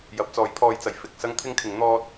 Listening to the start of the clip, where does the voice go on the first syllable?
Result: rising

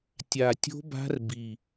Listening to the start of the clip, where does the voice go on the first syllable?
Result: low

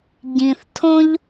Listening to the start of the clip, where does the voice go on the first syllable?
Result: low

